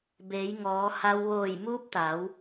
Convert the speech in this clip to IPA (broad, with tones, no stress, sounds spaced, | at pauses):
b eː˩˧ j ŋ ɔː˩˧ h a˧ w ʋ oː˧˩ j m uː˧˥ p̚ t̪ a˩˧ w